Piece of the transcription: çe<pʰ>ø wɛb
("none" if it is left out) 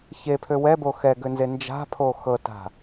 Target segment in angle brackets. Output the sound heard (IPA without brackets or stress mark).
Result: pʰ